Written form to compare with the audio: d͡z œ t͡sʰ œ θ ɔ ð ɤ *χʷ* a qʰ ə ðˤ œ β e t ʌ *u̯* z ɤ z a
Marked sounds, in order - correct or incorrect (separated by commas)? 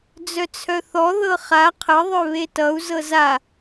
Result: incorrect, correct